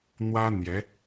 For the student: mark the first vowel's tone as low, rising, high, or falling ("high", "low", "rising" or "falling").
high